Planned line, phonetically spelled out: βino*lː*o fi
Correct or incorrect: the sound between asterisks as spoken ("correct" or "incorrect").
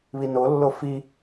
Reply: correct